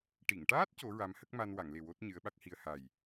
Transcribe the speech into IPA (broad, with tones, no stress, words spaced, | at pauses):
ʈi˨˩˨ŋʈaː˦˥t̚ co˧˥ɹa˧˥mhə˦˥k̚ma˧n wa˨˩˨ŋle˨˩ wo˦˥t̚ ɲɨ˧˥ə̯ɓa˦˥k̚hi˧ə̯ ha˨˩j